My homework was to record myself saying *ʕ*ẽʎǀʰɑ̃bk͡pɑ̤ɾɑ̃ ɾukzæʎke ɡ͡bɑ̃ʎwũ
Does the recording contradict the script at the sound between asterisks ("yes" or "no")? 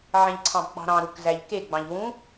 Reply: no